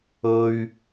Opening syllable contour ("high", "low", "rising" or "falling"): high